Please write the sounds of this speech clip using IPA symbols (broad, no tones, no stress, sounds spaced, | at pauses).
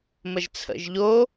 m ə ʒ t͡sʰ ə̰ ʒ ʎ o